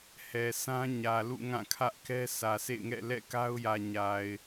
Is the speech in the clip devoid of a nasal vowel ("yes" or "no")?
no